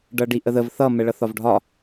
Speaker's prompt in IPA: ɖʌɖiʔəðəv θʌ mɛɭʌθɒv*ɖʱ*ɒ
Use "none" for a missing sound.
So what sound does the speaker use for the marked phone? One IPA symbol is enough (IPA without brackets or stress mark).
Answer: ɖʱ